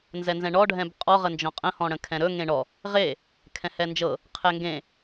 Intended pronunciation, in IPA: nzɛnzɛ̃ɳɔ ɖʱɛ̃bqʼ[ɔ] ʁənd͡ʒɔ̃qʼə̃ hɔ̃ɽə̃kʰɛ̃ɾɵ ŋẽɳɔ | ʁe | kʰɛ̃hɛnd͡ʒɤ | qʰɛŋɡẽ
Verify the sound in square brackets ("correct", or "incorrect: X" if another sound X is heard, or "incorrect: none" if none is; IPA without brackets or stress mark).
correct